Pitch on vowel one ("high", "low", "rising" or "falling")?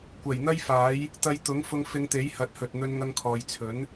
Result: low